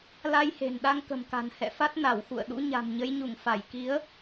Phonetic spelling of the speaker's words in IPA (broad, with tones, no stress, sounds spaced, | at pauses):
l a˧ j h e̤˨˩ n ɗ a˧ ŋ k ə̤˨˩ m k a̤˨˩ n h ɛ̰˧˨ f a˦˥ t̚ n a˧˩ w x ṵ˧˨ ə̯ ɗ ṵ˧˥ ɲ a̤˨˩ m ɲ ə˨˦ j ɲ u˧˩ ŋ f a˧˩ j k i˨˦ ə̯